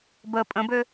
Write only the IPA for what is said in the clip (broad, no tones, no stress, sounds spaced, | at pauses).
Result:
b ə pʼ ə̃ b ø